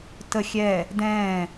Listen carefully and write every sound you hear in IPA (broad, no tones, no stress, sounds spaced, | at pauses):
t ə xʲ ɛ | d ɛ̃